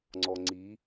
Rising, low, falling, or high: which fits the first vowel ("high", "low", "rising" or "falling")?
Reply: low